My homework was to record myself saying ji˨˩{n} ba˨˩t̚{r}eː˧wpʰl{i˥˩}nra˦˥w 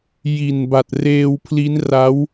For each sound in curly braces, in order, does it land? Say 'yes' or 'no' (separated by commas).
yes, yes, no